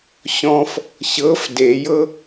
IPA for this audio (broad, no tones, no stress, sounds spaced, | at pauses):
ɕ ɔ̃ f | ɕ ɤ f d e j ɤ